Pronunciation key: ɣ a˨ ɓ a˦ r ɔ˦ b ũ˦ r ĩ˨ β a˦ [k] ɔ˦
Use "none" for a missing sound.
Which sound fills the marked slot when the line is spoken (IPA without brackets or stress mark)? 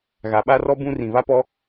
p